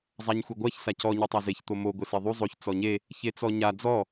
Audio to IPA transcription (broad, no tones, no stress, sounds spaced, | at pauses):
zˤ a ɲ xʷ e ɡʷ a ç s a c ɔ ɲ ɘ tˤ a z e ç t̪ o m o ɡʷ e s e ðˤ u zˤ o ç t͡s ɔ ɲ e | ç e t͡s ɔ ɲ a d͡z ɔ